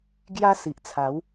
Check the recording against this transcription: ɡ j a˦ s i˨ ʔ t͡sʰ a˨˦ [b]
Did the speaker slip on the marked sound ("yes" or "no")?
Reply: yes